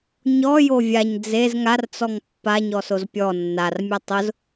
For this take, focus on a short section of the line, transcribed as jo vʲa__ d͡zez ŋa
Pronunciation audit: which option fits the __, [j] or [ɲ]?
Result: ɲ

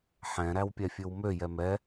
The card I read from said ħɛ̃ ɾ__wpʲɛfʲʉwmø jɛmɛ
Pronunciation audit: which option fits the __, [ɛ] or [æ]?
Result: æ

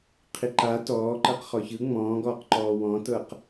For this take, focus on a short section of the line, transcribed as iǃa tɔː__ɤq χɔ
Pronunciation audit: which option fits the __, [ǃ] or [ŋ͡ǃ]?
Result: ǃ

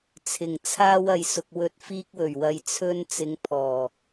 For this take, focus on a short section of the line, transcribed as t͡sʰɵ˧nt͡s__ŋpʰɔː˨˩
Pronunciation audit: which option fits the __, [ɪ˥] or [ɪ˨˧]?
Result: ɪ˨˧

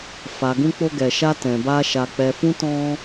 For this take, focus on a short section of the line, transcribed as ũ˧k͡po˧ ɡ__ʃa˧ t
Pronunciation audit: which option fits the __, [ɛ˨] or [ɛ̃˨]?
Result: ɛ˨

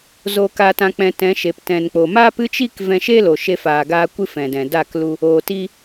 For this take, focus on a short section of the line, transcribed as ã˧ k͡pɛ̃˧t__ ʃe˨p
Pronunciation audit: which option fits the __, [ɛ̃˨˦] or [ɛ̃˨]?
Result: ɛ̃˨˦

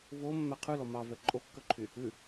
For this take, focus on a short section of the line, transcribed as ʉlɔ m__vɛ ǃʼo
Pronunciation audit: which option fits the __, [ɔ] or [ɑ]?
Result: ɑ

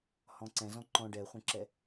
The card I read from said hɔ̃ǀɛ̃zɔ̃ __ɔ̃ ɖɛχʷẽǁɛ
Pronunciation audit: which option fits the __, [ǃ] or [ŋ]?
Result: ǃ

